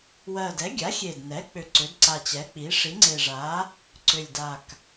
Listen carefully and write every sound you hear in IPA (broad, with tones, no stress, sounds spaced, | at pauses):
w ɜ˨˩ d ɛ˩˥ ɡʲ a˩˥ xʲ e˨˩ d n ɛ˩˥ k͡p ʏ˨˩ ǀ ʏ˩˥ d ǀ a˨˩ t͡ɕ ɛ˩˥ k͡p i˩˥ ʂ i˩˥ ŋ͡ǀ e˨˩ ʐ a˩˥ | ǀ ʏ˨˩ lʲ d a˨˩ k